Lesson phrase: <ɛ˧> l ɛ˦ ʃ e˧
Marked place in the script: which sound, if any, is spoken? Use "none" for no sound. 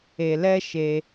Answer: e˧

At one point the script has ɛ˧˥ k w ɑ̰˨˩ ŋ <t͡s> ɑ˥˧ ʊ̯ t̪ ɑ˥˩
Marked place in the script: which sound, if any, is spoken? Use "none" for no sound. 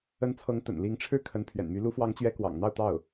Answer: n̪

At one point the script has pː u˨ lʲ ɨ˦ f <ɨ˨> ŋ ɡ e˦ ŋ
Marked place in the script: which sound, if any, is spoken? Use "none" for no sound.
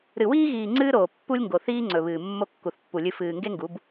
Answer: ɨː˨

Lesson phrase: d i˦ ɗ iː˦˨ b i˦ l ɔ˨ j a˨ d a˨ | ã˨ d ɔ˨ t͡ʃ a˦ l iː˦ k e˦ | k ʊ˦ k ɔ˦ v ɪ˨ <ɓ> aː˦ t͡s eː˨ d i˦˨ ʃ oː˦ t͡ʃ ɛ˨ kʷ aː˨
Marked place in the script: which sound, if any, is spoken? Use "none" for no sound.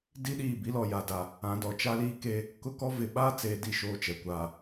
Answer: ɓ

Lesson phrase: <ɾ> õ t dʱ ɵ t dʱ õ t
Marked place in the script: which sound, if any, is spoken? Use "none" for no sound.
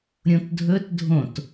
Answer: ɾʲ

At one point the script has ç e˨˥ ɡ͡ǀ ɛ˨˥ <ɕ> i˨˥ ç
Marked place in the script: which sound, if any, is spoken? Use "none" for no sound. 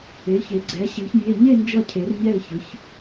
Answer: ɕ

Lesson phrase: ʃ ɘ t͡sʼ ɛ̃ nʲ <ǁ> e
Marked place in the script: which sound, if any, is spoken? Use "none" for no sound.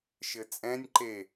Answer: ǃ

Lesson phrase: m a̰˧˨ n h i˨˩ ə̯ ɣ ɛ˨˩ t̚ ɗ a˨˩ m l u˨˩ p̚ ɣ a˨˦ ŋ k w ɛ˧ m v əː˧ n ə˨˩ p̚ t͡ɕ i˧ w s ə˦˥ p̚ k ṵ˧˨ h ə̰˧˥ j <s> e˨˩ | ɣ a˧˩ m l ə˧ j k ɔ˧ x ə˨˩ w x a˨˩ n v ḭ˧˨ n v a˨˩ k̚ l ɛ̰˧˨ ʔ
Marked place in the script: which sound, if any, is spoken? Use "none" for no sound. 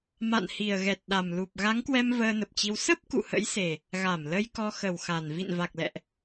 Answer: s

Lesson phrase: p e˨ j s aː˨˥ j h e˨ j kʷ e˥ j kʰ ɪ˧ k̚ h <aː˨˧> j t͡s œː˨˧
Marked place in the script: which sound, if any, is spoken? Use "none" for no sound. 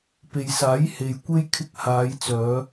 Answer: aː˨˧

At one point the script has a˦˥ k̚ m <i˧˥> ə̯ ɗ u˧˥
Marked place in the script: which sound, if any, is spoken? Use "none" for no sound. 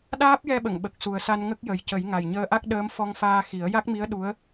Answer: i˧˥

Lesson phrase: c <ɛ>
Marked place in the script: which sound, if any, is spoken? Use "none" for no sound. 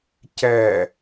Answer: ɛ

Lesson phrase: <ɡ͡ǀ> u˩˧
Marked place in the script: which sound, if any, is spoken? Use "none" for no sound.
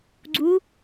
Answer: ɡ͡ǀ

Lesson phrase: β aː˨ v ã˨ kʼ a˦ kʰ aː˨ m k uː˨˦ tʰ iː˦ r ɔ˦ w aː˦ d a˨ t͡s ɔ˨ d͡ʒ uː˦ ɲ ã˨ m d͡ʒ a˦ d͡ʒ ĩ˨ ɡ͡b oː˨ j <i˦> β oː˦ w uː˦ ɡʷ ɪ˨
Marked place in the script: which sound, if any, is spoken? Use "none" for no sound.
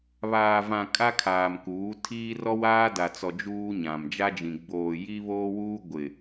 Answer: i˦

